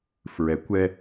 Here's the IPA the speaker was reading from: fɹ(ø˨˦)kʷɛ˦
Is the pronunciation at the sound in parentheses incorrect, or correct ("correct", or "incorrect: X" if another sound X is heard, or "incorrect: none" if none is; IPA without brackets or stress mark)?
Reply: incorrect: ɛ˨˦